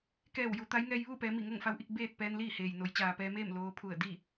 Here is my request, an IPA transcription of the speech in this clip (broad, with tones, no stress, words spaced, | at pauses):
kɛː˧˩wju˩˧ t̪a˧˥jŋɛː˧j ʋuː˥˨pɛː˩˧ mi˧˩ŋo˥˨ŋfa˧wʔi˥˨k̚ beː˥˨t̚ pɛː˧nliː˥˨heː˩j no˩˧j t͡ɕaː˩pɛː˧meː˥˨m loː˧ pʰu˧˩ə̯di˥˨